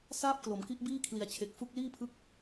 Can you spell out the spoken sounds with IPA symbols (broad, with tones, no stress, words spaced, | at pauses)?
saː˥˩p̚klo˩˦mki˦˥ʔ biː˥˩kʰli˨˩a̯t͡ɕʰe˨˩k̚ fu˥˩k̚ liː˥˩pʰɯ˦˥k̚